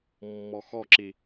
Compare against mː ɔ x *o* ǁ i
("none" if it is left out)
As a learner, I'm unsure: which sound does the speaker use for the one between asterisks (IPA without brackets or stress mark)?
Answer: ɔ